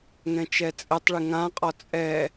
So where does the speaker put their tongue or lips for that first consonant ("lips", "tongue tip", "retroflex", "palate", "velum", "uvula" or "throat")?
velum